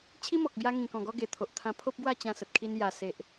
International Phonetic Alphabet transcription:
t͡ɕʰ i˦ m ɔ˨ k̚ b j a˧ ŋ ĩ˨˩ k ɔ̃˨˩ ɡ ɔ˧ ɡ e˨˩ t̪ʰ o˨ ʔ t̪ʰ ã˧ pʰ o˦ p̚ ɡ w a˥˧ t͡ɕ ã˧ s ə˨ t̚ kʰ i˧ n j a˨˩ s e˨ ʔ

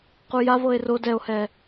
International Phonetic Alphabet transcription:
q u j a v ɤ e̯ r o d ɛ o̯ h ɛ

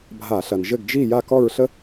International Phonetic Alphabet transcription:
bʱ a˧˩˧ ɬ ɐ˩ n ʒ ɘ˥˨ ɡ d͡ʒ i˥˨ j a˥˨ k ɔ˥˨ ɹ ɬ ə˥

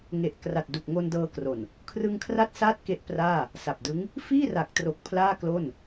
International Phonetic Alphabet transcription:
ŋ e˨˩ ʔ k r a˨˩ t̚ d u˨˩ k̚ ŋ o˧ n d ɤː˧ k r o˨˩ n | kʰ r ɯ˧ ŋ kʰ r a˦˥ t̚ s aː˥˩ t̚ k e˦˥ ʔ p r aː˥˩ | s a˨˩ p̚ d ɯ˦˥ ŋ | f iː˥˩ r a˨˩ k̚ t r o˨˩ k̚ pʰ l aː˥˩ k l o˥˩ n

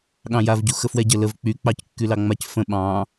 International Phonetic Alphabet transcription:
ɠ ɑ̃ j a v ɟ u x ə f w ɛ ɟ ə l ə v k͡p y k͡p ɑ c kː y l ɑ ŋ͡m a c f ə̃ ɓ ɑ̃

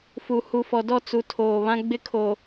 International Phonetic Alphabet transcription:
f u˨ h u˨ f ɔ˨ d ɔ˦˨ t͡s u˨ tʰ oː˨ β ã˦ ɡ͡b ɪ˦ kʰ o˨

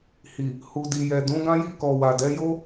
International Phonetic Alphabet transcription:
h i˨ | h u˨ d i˨ j ɛ˨ d ũ˨˦ ɡ ã˦ j i˦˨ k ɔ˨ w a˨ d ɛ˨˦ j o˦

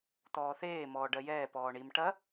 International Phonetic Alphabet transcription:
t̪ ɔː θ eː m ɔː ɖ ɜ j ɛː p ɔː ɳ i m ʈ ɐ

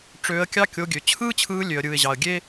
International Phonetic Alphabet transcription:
ʈ͡ʂ øː˧ ə̯ kʲ ɑ˦ kʲ o˧ ɡʲ ø˨ t͡ɕʰ ɯː˦ t͡ɕʰ ɯː˧ lʲ ø˨ ə̯ ɾʲ ɯː˨ ɪ̯ ʑ ɑ˨ ə̯ ɡʲ eː˦

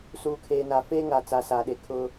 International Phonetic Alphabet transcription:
s uː˨ kʰ eː˨ n a˨ f eː˦ ŋ a˨ t͡s a˨ s aː˨ ɗ e˨ kʰ ʊ˦

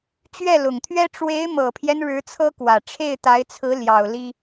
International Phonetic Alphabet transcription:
t͡ɕ ɥ ɛ˥˩ l ʊ˨˩ ŋ t̪ʰ ɥ ɛ˥ ʈ͡ʂ w e˧˥ ɪ̯ m ɤ˨˩ pʰ j ɛ˦ n ɻ ɻ̩˧˥ t͡sʰ ɤ˥ k w ä˨˩ ʈ͡ʂʰ e˥˩ ɪ̯ t̪ a˧˥ ɪ̯ t͡sʰ ɹ̩˧˥ l j ɑ˨˩ ʊ̯ l i˥

